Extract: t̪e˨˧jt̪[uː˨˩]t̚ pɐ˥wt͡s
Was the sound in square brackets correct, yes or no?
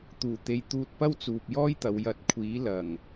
no